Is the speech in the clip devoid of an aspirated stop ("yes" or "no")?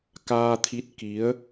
no